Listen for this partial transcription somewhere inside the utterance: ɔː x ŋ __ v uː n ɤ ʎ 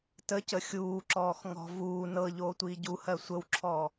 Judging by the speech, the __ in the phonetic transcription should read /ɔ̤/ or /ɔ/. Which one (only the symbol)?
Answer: ɔ̤